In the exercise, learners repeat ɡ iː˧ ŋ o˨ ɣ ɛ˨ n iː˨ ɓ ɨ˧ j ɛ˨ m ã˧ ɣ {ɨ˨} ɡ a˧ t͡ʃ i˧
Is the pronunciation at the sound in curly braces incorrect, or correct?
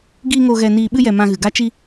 correct